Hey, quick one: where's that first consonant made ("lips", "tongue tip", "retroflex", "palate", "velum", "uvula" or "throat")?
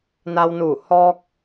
tongue tip